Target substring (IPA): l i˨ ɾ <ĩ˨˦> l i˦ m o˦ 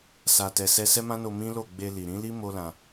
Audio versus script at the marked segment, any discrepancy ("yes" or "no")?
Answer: no